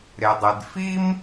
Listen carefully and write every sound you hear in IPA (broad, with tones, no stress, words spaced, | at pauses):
ɾe˩dˤɪ˩dfi˥m